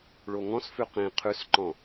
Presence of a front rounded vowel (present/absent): absent